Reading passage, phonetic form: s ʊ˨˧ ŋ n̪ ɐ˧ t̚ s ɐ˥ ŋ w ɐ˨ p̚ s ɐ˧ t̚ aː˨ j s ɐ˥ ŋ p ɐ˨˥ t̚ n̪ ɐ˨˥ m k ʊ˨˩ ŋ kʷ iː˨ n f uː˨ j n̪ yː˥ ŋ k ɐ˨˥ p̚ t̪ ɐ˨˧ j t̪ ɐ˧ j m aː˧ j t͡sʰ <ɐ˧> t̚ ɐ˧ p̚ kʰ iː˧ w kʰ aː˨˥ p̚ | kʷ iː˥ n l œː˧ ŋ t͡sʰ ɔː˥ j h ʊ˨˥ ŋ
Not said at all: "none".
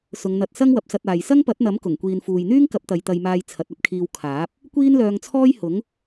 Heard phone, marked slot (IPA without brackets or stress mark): ɐ˨˥